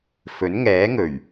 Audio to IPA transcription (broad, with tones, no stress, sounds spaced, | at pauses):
f ɵ˨˥ n ŋ ɛː˨˥ ŋ ɵ˨˩ ɥ